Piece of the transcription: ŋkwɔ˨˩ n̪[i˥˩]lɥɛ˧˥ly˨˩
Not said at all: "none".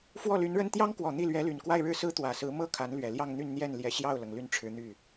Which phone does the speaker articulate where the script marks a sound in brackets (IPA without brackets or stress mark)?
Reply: i˥˩